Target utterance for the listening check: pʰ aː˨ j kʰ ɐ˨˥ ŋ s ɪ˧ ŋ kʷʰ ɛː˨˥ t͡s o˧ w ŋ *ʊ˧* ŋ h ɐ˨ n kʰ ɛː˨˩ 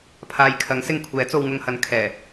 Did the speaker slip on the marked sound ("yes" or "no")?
no